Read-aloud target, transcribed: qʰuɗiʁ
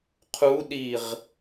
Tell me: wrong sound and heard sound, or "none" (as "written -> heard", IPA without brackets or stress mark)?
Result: none